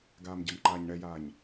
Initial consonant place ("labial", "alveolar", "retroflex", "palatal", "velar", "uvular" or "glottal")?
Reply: velar